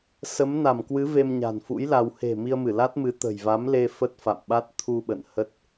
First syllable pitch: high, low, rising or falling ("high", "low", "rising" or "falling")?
rising